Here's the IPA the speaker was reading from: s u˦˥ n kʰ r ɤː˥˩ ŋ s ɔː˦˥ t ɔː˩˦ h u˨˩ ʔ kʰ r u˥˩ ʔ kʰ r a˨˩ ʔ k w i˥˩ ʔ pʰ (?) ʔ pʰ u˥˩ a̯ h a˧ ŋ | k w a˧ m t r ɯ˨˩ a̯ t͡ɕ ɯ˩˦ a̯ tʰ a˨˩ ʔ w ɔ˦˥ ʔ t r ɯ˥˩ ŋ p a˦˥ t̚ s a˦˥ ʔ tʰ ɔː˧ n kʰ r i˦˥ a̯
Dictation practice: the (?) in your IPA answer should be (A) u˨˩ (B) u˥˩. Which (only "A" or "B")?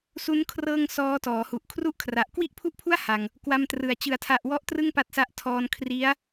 B